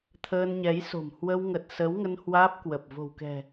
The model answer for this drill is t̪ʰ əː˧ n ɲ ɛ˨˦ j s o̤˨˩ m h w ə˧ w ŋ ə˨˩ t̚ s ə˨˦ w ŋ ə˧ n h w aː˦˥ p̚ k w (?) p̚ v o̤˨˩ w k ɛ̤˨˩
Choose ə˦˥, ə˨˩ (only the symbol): ə˨˩